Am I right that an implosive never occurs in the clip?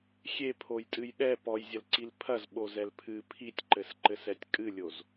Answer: no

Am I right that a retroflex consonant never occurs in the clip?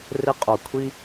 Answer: yes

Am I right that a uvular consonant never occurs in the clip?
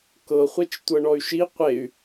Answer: no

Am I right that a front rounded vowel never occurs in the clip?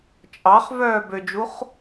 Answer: no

